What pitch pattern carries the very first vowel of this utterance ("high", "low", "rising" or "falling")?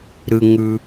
low